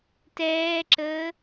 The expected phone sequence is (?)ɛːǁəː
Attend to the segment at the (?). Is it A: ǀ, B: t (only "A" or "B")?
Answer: B